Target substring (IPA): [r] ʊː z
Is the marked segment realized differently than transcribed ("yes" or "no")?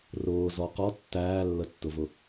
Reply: no